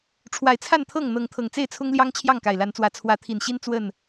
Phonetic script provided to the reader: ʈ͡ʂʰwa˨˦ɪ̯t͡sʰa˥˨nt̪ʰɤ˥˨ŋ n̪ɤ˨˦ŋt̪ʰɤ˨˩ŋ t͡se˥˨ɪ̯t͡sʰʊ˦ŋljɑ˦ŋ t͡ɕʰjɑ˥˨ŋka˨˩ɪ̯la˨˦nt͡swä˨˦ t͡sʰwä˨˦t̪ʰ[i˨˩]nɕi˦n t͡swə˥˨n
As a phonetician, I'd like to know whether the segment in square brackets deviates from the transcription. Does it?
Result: no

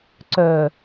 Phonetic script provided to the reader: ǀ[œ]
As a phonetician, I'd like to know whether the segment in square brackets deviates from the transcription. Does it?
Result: no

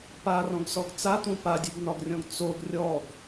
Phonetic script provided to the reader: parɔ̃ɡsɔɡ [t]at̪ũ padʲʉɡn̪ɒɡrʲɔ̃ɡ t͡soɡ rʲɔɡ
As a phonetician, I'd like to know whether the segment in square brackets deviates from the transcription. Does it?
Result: yes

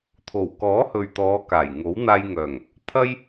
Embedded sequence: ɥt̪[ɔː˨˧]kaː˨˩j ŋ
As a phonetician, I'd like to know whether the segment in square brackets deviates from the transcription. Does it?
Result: no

